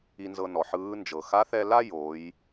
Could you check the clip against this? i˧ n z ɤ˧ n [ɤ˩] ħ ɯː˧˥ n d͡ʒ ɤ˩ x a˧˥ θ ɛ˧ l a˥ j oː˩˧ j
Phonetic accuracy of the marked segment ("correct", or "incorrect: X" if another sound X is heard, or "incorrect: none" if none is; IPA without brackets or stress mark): incorrect: ɔ˩